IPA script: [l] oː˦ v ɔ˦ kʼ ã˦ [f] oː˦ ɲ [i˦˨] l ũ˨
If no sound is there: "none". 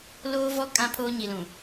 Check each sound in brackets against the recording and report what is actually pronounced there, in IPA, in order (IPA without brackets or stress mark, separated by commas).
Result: l, pʰ, i˨